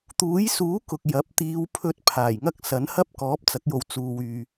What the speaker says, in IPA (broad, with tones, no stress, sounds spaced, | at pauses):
t̪ uː˨˥ j s uː˨˥ k ʊ˨ k̚ j ɐ˨˥ p̚ t̪ iː˨˧ w pʰ ɵ˧ t̚ pʰ aː˨˩ j ŋ ɐ˥ k̚ s ɐ˨˥ n h ɐ˥ p̚ k ɔː˨˥ p̚ t͡s ɐ˨˥ k̚ j o˨ w t͡s uː˨ w yː˨